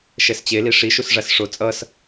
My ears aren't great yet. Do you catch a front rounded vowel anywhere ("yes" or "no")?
no